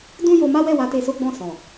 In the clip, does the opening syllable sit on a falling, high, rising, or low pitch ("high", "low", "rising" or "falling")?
high